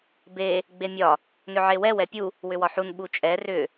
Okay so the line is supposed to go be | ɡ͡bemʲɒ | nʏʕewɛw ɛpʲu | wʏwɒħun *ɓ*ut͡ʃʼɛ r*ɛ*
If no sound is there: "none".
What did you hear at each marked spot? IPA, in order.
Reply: ɓ, ʏ

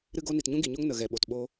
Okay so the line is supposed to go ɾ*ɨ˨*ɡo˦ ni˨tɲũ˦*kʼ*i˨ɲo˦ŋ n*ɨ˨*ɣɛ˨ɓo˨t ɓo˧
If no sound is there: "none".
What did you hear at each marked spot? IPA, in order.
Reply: ɨ˦, ɡ, ə˨

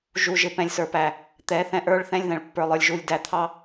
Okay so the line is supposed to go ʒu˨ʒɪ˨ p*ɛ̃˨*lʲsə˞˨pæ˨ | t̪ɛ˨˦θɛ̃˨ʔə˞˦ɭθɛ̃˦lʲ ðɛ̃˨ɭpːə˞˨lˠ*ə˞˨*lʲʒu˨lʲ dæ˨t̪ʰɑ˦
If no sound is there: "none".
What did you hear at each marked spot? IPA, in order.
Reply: ɛ̃˨, ə˞˨

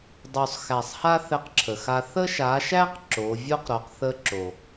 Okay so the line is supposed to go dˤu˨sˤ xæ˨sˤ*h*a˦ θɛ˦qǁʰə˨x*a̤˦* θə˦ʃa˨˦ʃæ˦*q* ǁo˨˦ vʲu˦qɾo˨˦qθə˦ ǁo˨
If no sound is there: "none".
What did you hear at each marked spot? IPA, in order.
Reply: h, a˦, q

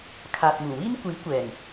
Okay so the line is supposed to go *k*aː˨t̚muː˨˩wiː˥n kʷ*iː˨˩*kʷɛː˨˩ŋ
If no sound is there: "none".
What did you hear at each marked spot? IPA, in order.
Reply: kʰ, iː˨˥

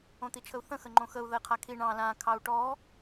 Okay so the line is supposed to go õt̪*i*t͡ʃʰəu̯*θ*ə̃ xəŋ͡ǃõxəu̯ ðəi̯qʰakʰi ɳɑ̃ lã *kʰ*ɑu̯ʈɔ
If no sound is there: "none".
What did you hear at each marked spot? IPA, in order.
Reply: i, θ, kʰ

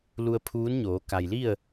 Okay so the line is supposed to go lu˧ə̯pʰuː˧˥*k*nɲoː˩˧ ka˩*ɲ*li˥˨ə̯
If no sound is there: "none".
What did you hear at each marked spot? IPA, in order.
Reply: none, j

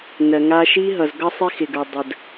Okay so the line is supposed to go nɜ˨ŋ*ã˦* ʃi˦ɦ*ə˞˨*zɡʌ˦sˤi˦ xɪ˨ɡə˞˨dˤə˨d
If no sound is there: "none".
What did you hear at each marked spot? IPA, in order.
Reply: a˦, ʌ˨

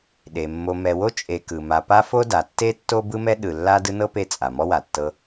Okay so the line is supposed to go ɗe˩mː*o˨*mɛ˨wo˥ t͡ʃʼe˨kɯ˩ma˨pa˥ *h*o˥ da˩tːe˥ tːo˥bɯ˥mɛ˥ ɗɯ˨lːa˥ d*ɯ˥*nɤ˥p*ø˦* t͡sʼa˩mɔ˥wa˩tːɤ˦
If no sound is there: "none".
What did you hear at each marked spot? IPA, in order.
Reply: o˨, f, ɯ˦, e˦

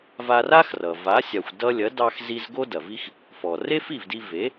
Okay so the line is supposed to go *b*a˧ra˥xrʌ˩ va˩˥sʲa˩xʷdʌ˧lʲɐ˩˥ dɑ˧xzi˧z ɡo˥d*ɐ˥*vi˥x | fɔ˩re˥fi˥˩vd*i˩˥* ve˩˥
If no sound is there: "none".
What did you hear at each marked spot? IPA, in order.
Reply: v, ɐ˩, i˧

